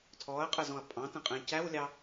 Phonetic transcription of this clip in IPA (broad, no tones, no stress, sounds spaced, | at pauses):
tʰ ɔ ɐ̯ qʼ ə z ɔ̃ ɐ̯ pʼ ɑ̃ t ə̃ qʼ ɛ̃ c æ w lʲ ɑ